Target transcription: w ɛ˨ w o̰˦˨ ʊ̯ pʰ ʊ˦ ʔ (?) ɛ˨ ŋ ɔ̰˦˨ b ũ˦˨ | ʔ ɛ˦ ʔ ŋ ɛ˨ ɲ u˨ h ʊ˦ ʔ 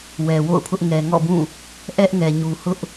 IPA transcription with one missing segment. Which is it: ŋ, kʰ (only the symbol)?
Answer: ŋ